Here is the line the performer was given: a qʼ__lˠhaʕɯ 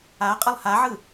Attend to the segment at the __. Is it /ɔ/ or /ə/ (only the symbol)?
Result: ə